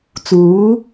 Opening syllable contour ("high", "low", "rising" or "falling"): rising